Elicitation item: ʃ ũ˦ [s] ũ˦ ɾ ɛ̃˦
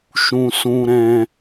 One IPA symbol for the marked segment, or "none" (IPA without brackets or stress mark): s